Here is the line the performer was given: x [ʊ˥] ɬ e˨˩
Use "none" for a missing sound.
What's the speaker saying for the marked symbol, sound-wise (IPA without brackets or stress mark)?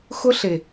ʊ˥